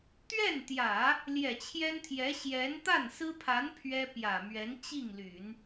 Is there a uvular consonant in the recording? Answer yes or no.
no